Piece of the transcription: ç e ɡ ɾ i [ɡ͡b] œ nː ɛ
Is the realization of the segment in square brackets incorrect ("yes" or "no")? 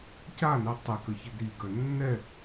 yes